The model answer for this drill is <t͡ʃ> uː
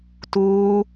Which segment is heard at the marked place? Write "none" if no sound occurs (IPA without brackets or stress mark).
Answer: t